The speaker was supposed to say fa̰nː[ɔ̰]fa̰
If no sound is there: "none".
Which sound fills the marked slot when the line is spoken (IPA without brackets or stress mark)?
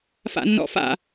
ɔ̰